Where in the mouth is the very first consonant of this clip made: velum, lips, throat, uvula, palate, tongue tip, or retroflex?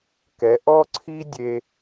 velum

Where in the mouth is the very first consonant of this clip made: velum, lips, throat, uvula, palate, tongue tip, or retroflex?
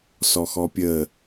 tongue tip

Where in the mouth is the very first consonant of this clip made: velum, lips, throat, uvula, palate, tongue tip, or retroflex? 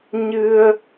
palate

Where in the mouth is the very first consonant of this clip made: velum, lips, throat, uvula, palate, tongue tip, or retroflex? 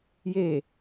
palate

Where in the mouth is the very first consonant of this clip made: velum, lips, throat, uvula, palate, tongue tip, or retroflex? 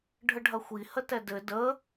retroflex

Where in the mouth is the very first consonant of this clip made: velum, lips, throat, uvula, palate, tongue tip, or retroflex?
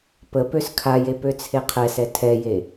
lips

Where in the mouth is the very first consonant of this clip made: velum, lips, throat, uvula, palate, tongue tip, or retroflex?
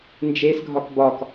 tongue tip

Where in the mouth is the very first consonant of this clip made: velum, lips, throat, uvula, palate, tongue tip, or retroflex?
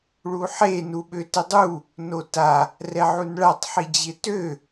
retroflex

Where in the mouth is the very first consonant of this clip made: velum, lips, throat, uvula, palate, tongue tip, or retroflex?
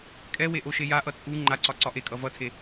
velum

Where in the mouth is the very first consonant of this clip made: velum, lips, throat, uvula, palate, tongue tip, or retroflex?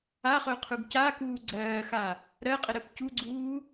uvula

